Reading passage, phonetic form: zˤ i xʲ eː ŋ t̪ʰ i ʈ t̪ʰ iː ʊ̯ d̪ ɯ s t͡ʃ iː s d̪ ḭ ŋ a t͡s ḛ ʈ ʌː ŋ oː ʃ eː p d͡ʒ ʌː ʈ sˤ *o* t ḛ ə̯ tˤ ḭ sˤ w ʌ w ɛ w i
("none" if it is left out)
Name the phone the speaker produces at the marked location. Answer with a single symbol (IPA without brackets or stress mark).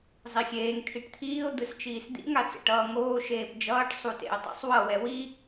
u